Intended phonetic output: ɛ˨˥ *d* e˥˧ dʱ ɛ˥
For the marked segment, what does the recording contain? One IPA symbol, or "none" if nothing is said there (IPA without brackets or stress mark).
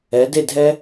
d